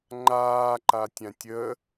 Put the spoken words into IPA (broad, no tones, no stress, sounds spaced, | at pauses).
ŋ͡ǃ aː ǃ a tʲ ã tʲ ə